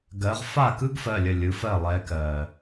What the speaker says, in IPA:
ɡɜ˨˦ʁ fa˥˩kɯ˥ɡfɜ˩˧˩lʲə˩˧˩ lʲɯ˨˦ fɜ˥˩lˠɛ˨˦kɜ˩

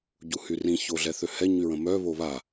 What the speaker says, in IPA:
ɟuhyrĩ çoɮɛθøhɛ ɲyɹə̃mœ βoβa

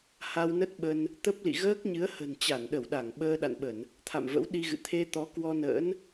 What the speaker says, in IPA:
ha˧wnə˦˥t̚ɓə˧n | t̪ə˦˥p̚lḭ˧˨ ɣəː˦˥k̚ɲɨ˨˦ə̯hə̤˨˩n t͡ɕa˧˩nɗə˧˩wɗa˧˩ŋ ɓəː˧ɗa̰˧˨nɓə˧˩˨n | t̪ʰa̰˧˨mvə̰˧˥wɗi˧ɣɨ̰˧˨ t̪ʰe˧t̪ɔ˨˦ kwɔ˧nə̰ː˧˥n

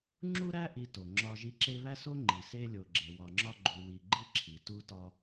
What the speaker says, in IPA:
ŋ͡ǁu˦ɾæ˦ʔi˨to˩ ŋ͡ǁɒ˨ ʒi˦ ǁe˦βæ˥so˥ ŋ͡ǃi˩se˦lʲo˨ ɡ͡ǁe˨wɒ˨ŋ͡ǁɒ˦ ɡ͡ǃu˨wi˨ɡ͡ǃi˥ ǁʰi˨ tu˦tɒ˦

